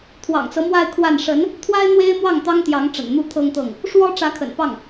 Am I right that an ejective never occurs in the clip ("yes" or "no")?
yes